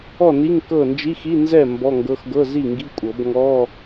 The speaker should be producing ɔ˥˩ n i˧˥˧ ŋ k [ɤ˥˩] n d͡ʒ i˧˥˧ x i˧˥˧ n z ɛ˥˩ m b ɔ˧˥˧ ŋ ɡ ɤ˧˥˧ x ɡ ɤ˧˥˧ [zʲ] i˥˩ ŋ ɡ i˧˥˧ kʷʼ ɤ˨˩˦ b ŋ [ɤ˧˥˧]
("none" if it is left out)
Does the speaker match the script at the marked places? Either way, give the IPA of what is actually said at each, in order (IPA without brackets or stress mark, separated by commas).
ɤ˥˩, z, ɔ˧˥˧